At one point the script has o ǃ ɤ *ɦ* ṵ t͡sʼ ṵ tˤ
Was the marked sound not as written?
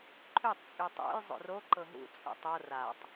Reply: no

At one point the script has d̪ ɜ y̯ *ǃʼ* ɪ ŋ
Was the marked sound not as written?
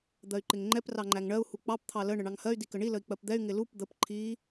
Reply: yes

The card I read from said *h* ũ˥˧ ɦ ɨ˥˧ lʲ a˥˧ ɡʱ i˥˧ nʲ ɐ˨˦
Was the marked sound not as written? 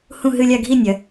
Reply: no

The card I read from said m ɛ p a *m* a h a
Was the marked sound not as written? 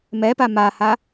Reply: no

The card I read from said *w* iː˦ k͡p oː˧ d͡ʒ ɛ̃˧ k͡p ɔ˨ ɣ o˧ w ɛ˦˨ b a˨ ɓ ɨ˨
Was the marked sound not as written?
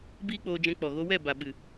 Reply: yes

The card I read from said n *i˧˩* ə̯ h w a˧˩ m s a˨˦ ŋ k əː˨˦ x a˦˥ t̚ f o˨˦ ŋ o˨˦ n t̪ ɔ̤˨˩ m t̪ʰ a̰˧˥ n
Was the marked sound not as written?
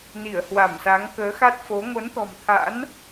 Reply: no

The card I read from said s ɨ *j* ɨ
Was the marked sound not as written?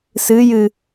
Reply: no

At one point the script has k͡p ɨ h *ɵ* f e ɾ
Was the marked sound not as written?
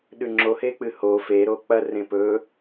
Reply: yes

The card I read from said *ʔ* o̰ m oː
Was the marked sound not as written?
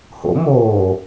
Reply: yes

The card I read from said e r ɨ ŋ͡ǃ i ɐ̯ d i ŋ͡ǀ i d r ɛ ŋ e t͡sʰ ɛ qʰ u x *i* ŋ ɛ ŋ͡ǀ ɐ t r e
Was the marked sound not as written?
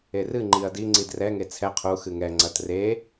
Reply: yes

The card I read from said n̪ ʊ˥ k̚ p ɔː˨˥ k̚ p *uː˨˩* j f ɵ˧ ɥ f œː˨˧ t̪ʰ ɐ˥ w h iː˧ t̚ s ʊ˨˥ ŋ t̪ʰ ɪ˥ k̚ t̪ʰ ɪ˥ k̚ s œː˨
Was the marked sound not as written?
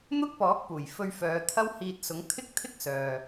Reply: no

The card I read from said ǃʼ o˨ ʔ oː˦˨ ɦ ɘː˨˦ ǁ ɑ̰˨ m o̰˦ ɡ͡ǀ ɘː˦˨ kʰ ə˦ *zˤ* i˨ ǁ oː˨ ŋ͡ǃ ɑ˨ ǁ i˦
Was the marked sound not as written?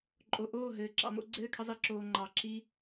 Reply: no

